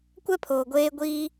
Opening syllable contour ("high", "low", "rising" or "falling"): high